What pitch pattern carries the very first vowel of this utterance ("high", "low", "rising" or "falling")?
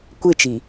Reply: falling